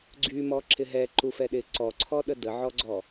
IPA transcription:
ɡ͡ǀ y m ɔ ǁ ɪ ɦ ɛ ǃ u f ɛ ɗ ɪ ǀ ɔ ǀʰ ɔ ɗ ə d ə ʕ ɔ ɡ͡ǀ ɔ

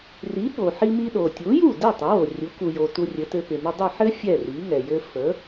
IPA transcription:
r i˩˥ ɓ o˩ ħ i˧ m i˧ ɗ o˩ tʲ u˩˥ j u˥˩ d ɛ˥˩ tˤ ɪ˩˥ w o˩ rʲ u˩˥ k u˩ j o˩ t u˧ rʲ ɘ˩˥ t ɘ˧ p ɪ˩ m ɘ˧ dˤ ɘ˥˩ ħ ɘ˥ fʲ ɛ˥˩ r i˩˥ ŋ ɛ˩ j ɘ˧ f ə˩˥

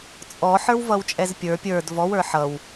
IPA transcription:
t͡sʼ ɔ ħ ə˞ w v ʌ w t͡ʃʼ ɛ z pʲ ə˞ pʲ ə˞ d v ɔ w ə˞ ħ ʌ w

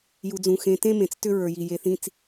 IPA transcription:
j u˨ d͡z ũ˨ x ẽ˨˦ t ẽ˦ m ẽ˨ t͡s t ʏ˦ ɹ ə˞˨ j i˨ j e˨ θ ĩ˨ t͡s

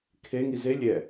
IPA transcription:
kʰ e ŋ i z e lʲ ɛ

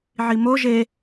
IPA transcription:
ʕ i m o ʒ e

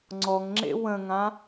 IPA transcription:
ŋ͡ǀ ɔ ŋ ŋ͡ǁ ḛ w ə̃ ŋ ã

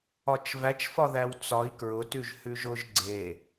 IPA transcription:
ɒ t͡ʃ v æ t͡ʃ f ɒ ð æ w t͡s ɒ i̯ k ɹ ʊ t ʉ ʒ h ʉ ʒ ʊ ʒ ɡ͡ǀ e

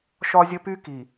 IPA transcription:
ʃ ɒ˦ zʲ ə˦ p y˦ k i˨

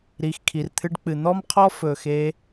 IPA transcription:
ɾ i˨ x kʰ i˨ r t̪ʰ ɨ˧ ɖ k͡p ɨ˨ n̪ ɔ˦ m qʰ ɔ˦ f ɵ˧ x e˦

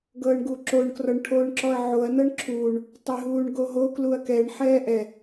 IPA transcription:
ɡ ɤː ɳ ɡ u ǁ o ɳ k r ɔ ɳ ʈʰ oː ɳ ǁ ɔ ɐ̯ ʕ o ɐ̯ n ɤ ɳ ǁʰ uː ɳ | tˤ ɛ ɦ uː ɳ ɡ o ɦ o k l u ɐ̯ k ɛ ɳ ħ ɛː ʔ ɛ

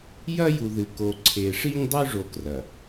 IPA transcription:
j ɐ˦ j u˨ ð ɨ˨ k o˨ ǀʰ e˨ ʂ i˦ ɲ dˤ ʉ˦ ʐ o˦ k r ɐ˨

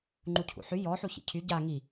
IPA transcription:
ŋ͡ǃ u cʰ ṵ ħ y j ɔ ħ u ç ḭ cʰ y ɟ a ŋ i

